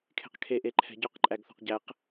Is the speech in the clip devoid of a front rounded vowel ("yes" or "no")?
yes